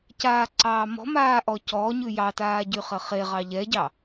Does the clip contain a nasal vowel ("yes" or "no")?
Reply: no